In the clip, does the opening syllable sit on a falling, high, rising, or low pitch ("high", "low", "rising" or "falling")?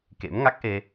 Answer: rising